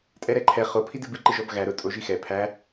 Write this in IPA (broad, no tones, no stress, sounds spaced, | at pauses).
tʼ ɛ ɾ ɛ ǃʰ ɛ χ o pʰ i d ɨ b ɨ ǃ ɨ ʒ ɔ b ɣ æ ɾ ʊ tʼ o ʒ i x ɛ pʰ æ